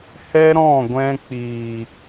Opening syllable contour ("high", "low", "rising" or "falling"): high